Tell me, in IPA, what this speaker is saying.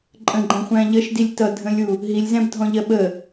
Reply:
ǃʼ ə̃ ɡ͡ǃ æ̃ χʷ æ̃ ʎ ə ʃ d i lʲ t ʌ dʱ ə̃ lʲ u | ɦ i lʲ z æ̃ b dʱ ɔ̃ ʎ ɜ ɓ ə

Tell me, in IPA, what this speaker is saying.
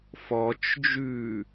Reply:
f ɔ t͡ʃ d͡ʒ ʉ

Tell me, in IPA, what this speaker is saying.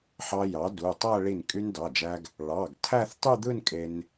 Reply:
ħ ɑ˧ j ɑ˩˥ d u˩˧˩ tˤ æ˥˧ ɭ i˧˩ n kʼ y˧ n d ɑ˩˧˩ d͡ʒ æ˧ ɡ | ɭ ɑ˩˧˩ ɡ tʰ æ˥˧ θ tˤ y˥˧ d̪ ɯ˥˧ n kʼ e˧ n

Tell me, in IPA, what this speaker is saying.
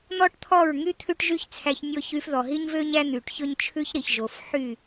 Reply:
n̪ ɔ˦ ʈ t̪ʰ ɔ˦˨ ɹ ŋ y˦ t̪ʰ ʉ˦ ʈ ʒ y˦ ç t͡sʰ æ˧ ç nʲ o˧ ç y˧ f ð ɔ˨ ɦ i˦ ɲ v ø˦ ɲ æ˦ n̪ y˨ ʈ ç ɵ˦ ɲ t͡ʃʰ ʉ˦ ç ɾ i˨ ç ʒ o˨ f ħ y˦˨

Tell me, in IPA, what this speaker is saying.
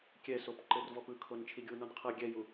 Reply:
kʲ ɛ s o p ǃ ɘ r v ɔ p ɯ kʰ o n t͡ʃʰ i ɡʲ u n ɔ n qʰ ɤ ɡʲ ɛ j u

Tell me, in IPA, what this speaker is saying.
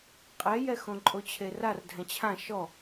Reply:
qʼ ɛ j ɛ x õ ǃʼ o t͡ɕʰ e r a r dʱ ɛ̃ t͡ɕʰ ã ʃ ɔ

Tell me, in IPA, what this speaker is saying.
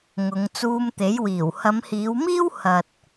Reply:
ŋ ʊ˨˧ ŋ t͡s uː˧ m t̪ e˨˥ j w iː˨˩ w h ɐ˨˧ m h iː˨˧ w m iː˥ w h ɐ˨ t̚

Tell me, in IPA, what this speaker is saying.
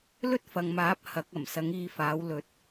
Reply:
l ɵ˥ t̚ f ɐ˨ ŋ m aː˨˥ p̚ h ɐ˨˥ k̚ ɐ˨˩ m s ɐ˨˥ ŋ iː˧ f aː˨˥ w l ɵ˨˥ t̚

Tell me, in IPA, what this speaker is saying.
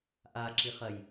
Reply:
ʔ a ǁ i χ ɐ j

